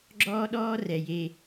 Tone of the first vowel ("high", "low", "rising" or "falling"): high